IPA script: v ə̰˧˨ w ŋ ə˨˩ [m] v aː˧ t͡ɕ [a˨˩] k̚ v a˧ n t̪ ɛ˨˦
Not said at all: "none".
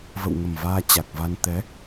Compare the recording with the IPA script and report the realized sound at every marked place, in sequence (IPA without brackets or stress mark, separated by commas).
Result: m, a˨˩